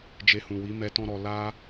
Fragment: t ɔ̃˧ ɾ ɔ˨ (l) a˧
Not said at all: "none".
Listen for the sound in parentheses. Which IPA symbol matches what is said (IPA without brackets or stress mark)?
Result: l